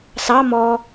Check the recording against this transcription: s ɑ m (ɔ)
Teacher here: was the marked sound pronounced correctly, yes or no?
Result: yes